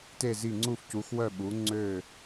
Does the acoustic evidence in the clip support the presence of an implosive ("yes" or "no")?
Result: yes